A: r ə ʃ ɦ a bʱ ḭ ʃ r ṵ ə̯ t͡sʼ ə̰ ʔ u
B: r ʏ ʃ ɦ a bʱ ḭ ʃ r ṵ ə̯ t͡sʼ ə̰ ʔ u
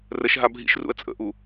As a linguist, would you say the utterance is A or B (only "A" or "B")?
A